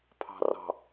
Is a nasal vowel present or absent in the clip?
absent